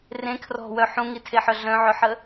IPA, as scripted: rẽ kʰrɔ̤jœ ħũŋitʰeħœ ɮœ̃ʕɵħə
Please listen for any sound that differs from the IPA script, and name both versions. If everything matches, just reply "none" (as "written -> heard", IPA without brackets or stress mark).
j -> w